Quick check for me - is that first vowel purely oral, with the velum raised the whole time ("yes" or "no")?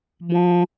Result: no